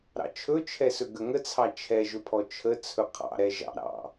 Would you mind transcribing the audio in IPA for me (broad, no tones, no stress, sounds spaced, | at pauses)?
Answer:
ɾ ɑ̰ t͡ʃʰ ɵ t͡ʃʰ ɛ s ɵ ɡ ə ŋ ə t͡sʰ ɑ t͡ʃʰ ɛ ʒ ɵ pʰ ɔ t͡ʃʰ ə t͡sʰ ɵ qʰ ɑ̰ ɾ ɛ ʒ ɑ̰ ɾ ɑ̰